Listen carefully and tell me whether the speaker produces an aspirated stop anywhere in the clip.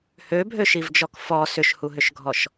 no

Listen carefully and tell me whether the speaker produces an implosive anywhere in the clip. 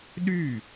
yes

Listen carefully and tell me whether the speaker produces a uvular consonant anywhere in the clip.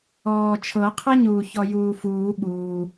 yes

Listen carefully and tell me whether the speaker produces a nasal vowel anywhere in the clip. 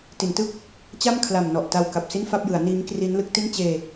no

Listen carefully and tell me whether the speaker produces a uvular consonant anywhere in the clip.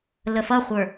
yes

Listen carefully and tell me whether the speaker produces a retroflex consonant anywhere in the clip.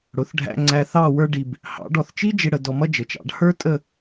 yes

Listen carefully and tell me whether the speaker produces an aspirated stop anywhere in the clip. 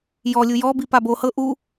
no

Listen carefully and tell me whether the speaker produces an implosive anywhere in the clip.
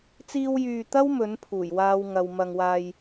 no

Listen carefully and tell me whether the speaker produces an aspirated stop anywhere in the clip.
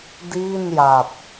no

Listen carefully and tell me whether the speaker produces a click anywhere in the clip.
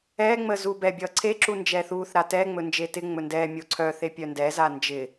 yes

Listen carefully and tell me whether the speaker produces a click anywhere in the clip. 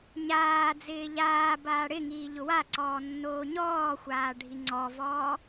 yes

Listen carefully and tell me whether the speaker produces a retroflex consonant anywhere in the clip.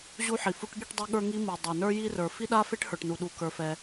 yes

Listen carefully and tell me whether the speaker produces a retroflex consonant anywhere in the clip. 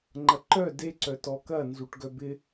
yes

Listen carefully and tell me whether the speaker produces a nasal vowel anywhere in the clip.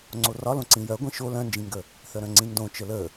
yes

